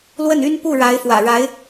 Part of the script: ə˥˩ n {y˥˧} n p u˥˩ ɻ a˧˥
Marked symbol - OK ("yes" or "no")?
no